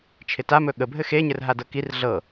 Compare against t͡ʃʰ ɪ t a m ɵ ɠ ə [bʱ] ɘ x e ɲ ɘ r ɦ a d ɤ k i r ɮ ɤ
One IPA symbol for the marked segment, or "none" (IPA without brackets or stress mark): bʱ